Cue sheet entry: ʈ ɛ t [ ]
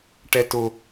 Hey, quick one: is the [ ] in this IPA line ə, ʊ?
ʊ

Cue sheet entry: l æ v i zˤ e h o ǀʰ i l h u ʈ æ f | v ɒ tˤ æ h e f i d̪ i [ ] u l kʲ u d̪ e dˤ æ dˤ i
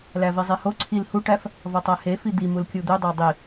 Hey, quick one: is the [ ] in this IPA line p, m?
m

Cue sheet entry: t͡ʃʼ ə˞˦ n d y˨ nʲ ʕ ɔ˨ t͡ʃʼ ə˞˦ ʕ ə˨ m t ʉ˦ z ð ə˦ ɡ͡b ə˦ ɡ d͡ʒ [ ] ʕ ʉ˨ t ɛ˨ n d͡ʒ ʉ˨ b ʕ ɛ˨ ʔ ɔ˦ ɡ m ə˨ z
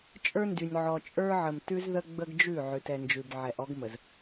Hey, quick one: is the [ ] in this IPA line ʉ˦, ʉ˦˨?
ʉ˦˨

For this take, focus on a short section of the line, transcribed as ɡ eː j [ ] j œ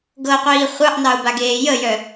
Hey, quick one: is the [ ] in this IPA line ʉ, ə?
ə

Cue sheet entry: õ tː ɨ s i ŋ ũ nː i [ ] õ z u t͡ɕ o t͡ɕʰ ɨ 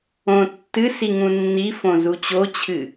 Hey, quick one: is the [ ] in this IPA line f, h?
f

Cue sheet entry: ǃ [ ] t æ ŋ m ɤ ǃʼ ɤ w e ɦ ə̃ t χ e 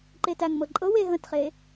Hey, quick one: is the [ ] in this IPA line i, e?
e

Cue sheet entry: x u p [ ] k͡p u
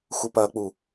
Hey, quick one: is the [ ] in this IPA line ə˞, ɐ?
ɐ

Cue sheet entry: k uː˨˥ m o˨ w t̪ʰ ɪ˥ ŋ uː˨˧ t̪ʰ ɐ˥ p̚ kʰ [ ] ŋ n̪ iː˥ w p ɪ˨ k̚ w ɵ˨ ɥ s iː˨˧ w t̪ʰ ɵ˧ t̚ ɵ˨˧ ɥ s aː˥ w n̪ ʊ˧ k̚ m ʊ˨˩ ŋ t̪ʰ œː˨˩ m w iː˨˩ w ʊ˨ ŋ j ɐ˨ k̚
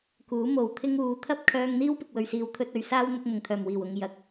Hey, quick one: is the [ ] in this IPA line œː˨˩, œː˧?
œː˧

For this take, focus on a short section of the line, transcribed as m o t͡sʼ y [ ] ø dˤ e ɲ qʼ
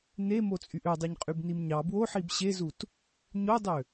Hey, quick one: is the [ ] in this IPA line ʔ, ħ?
ʔ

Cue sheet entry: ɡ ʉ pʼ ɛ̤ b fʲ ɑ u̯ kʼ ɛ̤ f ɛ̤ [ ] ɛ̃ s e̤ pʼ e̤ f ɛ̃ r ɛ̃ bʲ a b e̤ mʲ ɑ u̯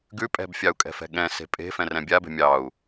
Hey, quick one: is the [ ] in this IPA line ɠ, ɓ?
ɠ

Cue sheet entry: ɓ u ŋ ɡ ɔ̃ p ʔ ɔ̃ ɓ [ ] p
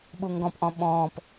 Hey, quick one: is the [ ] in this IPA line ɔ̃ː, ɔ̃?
ɔ̃ː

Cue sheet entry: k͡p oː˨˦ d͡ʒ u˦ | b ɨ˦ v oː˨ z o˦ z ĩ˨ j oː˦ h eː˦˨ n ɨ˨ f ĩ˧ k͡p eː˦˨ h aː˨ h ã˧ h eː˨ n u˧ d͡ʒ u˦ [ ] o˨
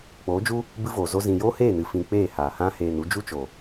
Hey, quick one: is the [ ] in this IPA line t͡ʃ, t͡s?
t͡ʃ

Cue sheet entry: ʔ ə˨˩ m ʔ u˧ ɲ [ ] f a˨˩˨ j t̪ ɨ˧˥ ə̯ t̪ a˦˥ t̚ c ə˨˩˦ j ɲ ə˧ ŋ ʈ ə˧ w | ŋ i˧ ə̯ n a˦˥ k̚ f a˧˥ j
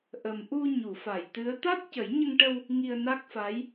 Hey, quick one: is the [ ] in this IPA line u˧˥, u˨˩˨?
u˨˩˨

